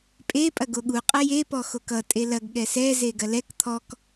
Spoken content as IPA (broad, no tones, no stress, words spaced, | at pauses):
pʼe pʼɐɡoɠu qʼɐje pɔxokʌ tʼelɐɡ ɠɛsɛ zeɡɐlɛk t̪ʰɔk